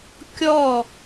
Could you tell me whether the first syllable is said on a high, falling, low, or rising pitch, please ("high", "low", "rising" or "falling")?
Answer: falling